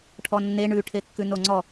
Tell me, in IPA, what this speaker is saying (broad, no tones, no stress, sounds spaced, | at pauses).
ʈʰ ɔ nː e ɳ ʉ ʈʰ e kː ʉ n o ŋ͡ǀ ɔ